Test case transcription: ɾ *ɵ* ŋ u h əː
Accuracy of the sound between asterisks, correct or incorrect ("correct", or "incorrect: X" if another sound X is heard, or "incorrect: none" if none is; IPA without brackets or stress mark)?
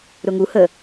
incorrect: ʊ